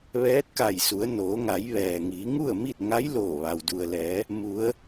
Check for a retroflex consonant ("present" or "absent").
absent